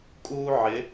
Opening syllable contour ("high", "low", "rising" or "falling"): high